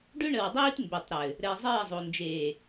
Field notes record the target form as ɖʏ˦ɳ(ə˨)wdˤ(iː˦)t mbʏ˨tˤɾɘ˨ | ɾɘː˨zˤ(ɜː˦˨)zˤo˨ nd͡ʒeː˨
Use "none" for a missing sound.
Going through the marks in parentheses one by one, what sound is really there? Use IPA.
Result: ə˨, iː˦, ɜː˦˨

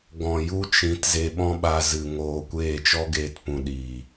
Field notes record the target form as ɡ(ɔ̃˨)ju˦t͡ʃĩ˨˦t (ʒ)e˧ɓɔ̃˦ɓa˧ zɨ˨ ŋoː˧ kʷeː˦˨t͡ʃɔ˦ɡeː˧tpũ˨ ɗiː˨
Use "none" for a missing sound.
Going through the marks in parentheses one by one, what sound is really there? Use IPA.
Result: ɔ̃˨, z

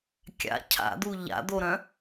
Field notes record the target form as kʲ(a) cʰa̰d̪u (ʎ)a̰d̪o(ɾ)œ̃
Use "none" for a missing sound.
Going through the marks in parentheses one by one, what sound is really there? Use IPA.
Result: a̰, ʎ, ɾ

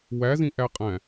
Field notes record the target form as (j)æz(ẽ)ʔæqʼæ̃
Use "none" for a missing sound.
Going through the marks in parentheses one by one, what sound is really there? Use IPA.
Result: w, ĩ

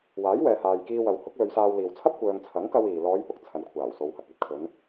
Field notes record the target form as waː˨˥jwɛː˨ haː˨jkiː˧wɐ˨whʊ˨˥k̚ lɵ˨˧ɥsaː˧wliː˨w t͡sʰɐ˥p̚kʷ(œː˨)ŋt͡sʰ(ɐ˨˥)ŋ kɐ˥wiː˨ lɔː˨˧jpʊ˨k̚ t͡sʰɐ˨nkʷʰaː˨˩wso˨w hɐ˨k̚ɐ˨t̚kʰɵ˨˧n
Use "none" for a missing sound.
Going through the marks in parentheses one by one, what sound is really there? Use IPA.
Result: œː˨, ɐ˨˥

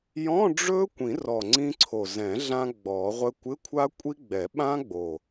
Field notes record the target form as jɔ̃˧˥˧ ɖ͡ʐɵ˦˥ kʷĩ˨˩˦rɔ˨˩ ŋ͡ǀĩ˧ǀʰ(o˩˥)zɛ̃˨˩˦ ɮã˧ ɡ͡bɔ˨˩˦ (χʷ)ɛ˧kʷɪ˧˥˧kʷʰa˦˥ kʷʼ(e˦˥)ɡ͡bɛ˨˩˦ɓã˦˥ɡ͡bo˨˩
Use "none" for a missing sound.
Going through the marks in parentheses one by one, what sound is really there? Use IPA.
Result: o˨˩, ʁʷ, i˦˥

